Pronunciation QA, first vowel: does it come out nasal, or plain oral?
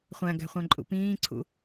nasal